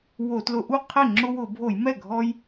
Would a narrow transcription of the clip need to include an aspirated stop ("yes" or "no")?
yes